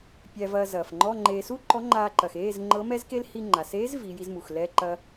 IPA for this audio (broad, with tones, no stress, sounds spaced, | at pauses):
pʲ æ˧ v ɐː˧ z ɐː˩ f ŋ͡ǃ ɔ˧˥˧ ŋ͡ǃ eː˧ s u˥ ǃ ɔ˧˥ ŋ͡ǃ aː˧ ǃ ɐ˩ x eː˧˥˧ z ŋ͡ǃ ɤ˧˥ m ɛ˥ z k e˥ l h i˧ ŋ͡ǃ a˩ s eː˧˥ z v iː˩˧ j i˧ z m u˩ x l ɛ˧˥˧ ǃ ɐ˧